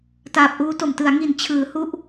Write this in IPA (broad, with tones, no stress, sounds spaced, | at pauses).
t aː˨˩ p̚ ʔ uː˦˥ t o˨˩ m t ɯ˩˦ a̯ ŋ i˨˩ n t͡ɕʰ ɯː˩˦ h u˥˩ ʔ